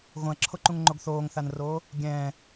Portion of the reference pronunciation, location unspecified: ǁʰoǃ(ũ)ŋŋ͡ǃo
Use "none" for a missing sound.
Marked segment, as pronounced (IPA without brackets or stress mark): ũ